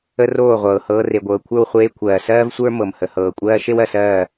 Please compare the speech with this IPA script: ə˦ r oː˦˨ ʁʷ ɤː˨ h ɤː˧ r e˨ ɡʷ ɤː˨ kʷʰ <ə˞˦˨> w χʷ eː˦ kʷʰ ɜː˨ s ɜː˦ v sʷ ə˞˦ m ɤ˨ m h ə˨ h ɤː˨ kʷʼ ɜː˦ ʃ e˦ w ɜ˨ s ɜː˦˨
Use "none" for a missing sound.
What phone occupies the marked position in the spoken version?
ə˞˦˨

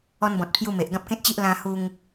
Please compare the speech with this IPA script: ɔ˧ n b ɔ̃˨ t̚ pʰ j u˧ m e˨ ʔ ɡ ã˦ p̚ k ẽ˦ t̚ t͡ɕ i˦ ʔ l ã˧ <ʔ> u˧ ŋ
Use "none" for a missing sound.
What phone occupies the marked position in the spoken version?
h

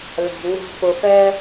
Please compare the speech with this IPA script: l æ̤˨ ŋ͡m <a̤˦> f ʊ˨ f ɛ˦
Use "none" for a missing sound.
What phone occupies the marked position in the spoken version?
æ̤˦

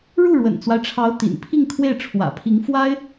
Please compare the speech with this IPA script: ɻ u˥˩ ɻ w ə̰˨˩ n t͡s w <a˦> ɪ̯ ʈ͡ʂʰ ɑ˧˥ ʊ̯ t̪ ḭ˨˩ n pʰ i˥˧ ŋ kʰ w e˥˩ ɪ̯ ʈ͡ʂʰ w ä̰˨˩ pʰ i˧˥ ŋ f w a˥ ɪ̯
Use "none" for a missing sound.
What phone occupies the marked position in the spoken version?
a˦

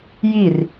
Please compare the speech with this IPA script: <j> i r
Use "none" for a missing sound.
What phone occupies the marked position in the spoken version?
j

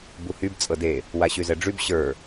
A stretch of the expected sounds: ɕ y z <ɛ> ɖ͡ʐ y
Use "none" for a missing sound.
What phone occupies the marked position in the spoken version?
ɛ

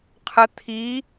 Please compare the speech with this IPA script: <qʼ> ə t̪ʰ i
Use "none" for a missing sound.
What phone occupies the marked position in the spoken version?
qʰ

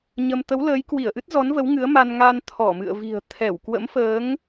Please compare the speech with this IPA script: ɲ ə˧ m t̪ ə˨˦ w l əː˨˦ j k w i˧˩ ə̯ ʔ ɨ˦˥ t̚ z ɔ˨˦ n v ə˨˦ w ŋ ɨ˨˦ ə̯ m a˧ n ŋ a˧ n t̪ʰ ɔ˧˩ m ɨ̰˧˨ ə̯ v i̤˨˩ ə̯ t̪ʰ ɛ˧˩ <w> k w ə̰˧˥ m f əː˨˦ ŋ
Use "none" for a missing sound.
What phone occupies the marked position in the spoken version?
w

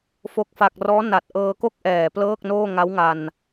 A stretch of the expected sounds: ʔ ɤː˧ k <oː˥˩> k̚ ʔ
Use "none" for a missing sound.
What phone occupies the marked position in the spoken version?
o˥˩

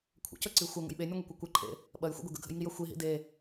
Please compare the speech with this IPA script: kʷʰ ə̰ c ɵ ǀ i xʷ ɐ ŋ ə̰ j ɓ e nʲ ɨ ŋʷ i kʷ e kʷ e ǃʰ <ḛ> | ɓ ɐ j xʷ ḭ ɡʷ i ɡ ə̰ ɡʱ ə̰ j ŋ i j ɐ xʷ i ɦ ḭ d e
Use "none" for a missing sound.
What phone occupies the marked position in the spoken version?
ḛ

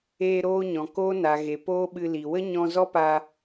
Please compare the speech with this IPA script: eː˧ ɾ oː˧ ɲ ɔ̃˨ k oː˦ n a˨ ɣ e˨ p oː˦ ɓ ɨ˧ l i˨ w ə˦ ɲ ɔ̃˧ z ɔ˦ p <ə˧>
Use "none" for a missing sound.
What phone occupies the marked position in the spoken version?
a˧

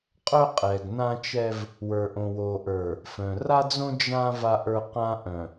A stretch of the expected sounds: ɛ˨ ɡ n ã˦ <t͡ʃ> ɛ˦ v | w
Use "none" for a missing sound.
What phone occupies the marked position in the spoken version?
t͡ʃ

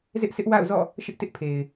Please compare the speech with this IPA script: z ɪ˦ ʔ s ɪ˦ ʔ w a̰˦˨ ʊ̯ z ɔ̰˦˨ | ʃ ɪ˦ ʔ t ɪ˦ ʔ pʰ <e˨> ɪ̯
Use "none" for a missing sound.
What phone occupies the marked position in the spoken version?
e˨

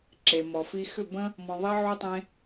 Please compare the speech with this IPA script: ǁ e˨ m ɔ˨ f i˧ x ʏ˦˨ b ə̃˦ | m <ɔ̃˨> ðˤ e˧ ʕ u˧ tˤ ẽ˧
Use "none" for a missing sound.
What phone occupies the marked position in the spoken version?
ɔ̃˨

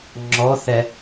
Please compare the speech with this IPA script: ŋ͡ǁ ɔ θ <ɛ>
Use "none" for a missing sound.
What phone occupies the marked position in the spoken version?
ɛ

